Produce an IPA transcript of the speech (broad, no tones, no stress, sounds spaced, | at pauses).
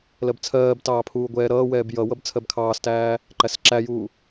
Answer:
l ɜ b t͡sʰ ɜː b t ɑː pʰ uː ɡʷ ɛː ɾ ʌː w ɛː b j ʌ w ʌ b t͡sʰ ɜ b kʰ ɑː s t æː | ǃ æ s ǁ æ j uː